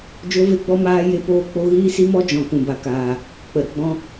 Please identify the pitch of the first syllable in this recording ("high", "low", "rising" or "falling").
high